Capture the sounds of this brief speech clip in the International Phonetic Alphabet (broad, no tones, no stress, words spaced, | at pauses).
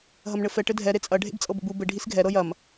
ɦɐmɳɘfɛ ʈɘdʱɛ ɾet͡sʼɐ ɖʱḛbt͡sʼɤbə̰bu bɘ ɖʱisɡʱɛ ɾɤjɐm